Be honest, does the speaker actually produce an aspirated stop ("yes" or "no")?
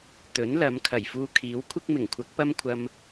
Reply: yes